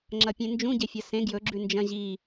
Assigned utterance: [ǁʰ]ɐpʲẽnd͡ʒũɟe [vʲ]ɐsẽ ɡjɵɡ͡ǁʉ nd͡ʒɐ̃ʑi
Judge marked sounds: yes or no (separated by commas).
no, no